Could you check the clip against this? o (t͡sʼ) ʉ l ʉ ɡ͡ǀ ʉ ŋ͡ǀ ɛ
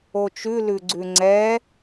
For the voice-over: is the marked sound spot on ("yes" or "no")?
no